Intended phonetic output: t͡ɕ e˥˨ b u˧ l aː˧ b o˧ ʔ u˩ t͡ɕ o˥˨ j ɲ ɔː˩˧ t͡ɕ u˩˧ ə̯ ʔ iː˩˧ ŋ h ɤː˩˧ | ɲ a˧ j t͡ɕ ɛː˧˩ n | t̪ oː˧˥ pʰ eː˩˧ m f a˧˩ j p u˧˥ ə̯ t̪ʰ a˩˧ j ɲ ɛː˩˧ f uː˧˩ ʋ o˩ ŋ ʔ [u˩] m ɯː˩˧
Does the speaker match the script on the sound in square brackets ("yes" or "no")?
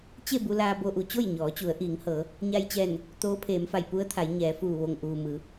no